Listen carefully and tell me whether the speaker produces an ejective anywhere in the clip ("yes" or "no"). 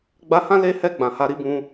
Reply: no